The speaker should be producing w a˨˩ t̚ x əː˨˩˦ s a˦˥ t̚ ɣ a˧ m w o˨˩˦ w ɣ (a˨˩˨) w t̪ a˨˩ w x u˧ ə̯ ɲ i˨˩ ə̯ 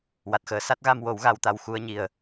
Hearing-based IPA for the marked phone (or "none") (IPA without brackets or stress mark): a˧